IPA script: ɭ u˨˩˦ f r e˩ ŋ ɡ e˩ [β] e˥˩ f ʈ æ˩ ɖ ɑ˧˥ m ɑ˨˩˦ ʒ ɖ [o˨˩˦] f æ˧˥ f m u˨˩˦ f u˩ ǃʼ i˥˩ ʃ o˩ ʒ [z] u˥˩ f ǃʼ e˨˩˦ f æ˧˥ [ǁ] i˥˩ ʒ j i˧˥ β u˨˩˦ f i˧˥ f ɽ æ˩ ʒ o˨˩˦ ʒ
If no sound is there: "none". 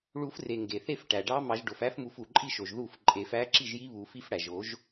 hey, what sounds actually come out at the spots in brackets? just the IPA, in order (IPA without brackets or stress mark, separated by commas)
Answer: θ, o˩, ð, ǁ